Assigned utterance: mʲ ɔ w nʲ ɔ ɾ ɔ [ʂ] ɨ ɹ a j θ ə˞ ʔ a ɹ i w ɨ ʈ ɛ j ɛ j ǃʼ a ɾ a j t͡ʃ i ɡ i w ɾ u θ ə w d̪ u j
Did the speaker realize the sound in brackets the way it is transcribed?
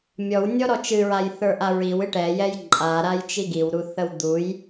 no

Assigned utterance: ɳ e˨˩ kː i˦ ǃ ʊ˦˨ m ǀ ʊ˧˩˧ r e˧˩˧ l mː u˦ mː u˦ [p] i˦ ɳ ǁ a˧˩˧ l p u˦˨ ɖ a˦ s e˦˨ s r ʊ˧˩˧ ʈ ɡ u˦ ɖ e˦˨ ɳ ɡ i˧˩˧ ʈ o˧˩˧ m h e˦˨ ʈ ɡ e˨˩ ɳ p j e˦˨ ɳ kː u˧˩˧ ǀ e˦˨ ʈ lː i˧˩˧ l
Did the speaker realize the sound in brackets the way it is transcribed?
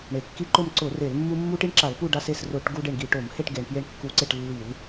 no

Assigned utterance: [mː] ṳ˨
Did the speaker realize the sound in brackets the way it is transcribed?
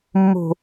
yes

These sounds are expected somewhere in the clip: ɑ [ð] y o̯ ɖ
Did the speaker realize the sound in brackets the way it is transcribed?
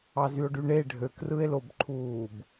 no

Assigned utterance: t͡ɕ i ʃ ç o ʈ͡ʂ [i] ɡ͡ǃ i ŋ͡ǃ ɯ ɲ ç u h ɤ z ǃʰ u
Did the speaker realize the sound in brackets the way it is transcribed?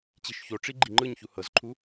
yes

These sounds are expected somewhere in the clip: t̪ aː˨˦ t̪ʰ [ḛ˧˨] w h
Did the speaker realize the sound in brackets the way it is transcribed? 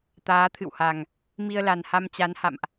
no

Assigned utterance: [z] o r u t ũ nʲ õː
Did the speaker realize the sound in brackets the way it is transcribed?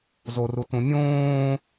yes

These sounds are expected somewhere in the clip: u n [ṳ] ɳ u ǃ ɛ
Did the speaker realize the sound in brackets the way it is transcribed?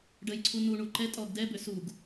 no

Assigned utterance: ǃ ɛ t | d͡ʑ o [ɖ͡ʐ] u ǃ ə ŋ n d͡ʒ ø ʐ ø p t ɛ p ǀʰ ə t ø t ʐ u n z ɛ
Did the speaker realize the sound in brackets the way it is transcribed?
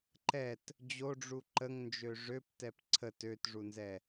yes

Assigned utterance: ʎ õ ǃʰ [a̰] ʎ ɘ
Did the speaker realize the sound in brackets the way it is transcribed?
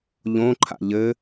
yes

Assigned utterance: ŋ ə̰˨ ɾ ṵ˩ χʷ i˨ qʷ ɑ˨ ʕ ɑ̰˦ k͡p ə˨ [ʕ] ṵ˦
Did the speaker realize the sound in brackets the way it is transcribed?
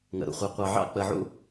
yes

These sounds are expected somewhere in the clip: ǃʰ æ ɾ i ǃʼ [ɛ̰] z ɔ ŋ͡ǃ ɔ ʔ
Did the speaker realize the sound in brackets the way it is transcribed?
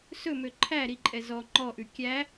no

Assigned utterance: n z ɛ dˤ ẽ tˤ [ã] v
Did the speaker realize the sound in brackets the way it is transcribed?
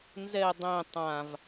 yes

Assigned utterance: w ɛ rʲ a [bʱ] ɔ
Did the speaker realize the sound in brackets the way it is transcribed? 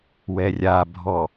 yes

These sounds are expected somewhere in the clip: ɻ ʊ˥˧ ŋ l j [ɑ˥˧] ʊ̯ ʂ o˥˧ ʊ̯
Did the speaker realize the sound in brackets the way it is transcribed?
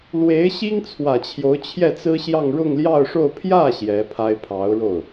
yes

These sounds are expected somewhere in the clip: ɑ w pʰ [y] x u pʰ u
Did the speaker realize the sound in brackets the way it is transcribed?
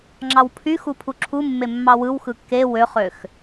yes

